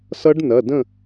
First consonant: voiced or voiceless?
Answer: voiceless